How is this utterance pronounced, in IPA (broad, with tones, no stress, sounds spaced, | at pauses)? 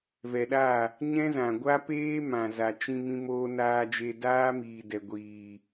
v ɛ˨ ɗ a˦˨ | ɲ ɛ̃˦ z ã˨ ɡʷ a˦ p eː˦ m ã˨ z a˨ t͡ʃ ĩ˧ m ĩ˧ m oː˧ n aː˧ d͡ʒ e˧ d aː˦ m iː˨ d ɛ˨ ɡʷ iː˨